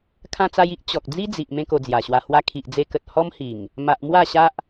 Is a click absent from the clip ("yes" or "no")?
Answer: yes